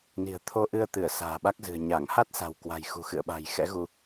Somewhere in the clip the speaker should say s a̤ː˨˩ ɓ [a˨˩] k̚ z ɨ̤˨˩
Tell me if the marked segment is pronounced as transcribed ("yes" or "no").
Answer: no